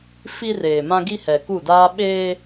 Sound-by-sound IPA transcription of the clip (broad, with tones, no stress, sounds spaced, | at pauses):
f i˦ r eː˨ m ã˦ ɡ i˦ h ɛ˨ k u˦˨ d aː˦ ɓ eː˦